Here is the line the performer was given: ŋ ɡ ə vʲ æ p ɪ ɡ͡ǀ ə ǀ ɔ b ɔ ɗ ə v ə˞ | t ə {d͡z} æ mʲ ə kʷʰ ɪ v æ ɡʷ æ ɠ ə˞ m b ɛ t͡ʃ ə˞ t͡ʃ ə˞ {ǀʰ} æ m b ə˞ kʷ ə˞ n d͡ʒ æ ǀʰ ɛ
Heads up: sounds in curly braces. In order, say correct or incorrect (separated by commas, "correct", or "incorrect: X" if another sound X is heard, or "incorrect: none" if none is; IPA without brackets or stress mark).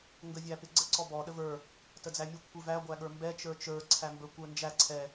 correct, correct